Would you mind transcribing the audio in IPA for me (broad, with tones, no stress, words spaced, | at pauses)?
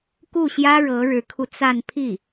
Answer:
ku˥˩ɕjä˥ɻɤ˧˥ ɻɻ̩˧˥kʰu˧t͡sa˥˧n pʰi˥˩